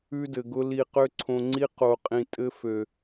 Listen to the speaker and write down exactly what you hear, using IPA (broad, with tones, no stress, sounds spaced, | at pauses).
ʉ˦ d ɘ˨ ɡ ʊ˦ l i˧ q ø˦ ǀʰ õ˧ ŋ͡ǀ i˦ q o˧ qʼ ĩ˧ tʼ ɘ˦ f ø˨